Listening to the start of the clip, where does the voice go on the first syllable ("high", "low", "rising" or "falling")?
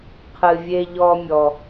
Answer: low